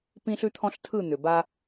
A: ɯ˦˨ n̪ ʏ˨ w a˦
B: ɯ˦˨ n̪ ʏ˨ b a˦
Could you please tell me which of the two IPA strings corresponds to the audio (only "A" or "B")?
B